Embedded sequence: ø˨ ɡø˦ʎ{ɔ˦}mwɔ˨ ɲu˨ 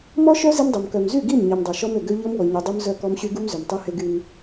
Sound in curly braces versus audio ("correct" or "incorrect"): correct